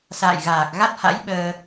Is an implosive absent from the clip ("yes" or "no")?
no